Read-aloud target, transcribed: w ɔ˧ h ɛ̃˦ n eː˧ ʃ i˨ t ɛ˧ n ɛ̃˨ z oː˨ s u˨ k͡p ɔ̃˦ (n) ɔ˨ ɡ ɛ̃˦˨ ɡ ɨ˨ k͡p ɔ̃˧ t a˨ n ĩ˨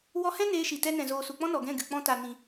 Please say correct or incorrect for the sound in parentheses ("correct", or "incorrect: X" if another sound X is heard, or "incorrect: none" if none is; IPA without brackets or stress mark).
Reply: correct